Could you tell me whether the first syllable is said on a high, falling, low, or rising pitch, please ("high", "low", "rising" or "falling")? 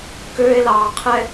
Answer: high